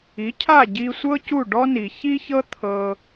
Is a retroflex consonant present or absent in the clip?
present